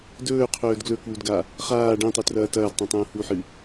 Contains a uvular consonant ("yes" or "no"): yes